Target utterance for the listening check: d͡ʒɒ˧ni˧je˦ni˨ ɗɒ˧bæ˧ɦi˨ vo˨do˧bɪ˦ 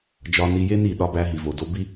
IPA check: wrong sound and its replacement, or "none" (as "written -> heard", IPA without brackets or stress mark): ɪ˦ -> i˦